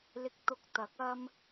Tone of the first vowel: low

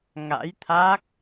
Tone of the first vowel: rising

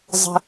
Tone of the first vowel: high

